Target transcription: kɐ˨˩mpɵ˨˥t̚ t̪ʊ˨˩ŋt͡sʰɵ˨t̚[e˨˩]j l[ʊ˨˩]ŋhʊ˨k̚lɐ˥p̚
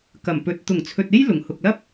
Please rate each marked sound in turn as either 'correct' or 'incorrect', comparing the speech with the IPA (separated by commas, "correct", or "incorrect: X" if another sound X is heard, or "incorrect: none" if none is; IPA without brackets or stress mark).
incorrect: e˥, correct